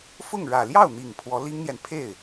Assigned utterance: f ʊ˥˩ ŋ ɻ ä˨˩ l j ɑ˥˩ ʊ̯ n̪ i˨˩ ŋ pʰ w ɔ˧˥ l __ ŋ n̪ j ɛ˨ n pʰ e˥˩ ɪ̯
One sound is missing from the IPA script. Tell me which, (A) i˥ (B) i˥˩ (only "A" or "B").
A